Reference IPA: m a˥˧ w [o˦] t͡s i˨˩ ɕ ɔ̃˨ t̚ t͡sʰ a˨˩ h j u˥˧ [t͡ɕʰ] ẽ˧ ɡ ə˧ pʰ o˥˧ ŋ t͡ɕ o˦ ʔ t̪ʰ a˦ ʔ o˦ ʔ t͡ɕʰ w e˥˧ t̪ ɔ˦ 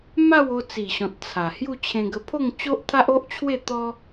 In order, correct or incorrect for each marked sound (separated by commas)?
incorrect, correct